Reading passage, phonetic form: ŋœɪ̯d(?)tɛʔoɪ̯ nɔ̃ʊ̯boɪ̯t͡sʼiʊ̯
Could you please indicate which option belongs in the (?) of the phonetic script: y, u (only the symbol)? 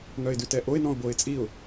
y